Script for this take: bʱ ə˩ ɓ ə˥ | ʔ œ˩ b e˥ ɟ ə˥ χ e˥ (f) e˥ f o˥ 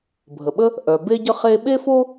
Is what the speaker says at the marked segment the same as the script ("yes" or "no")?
no